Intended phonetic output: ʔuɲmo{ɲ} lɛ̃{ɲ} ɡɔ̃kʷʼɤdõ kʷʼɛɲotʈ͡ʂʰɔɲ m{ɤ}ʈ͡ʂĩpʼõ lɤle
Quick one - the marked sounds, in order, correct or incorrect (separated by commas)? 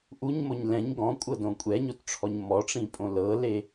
correct, correct, incorrect